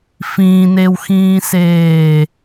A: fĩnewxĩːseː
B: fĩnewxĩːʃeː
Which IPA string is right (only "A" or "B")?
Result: A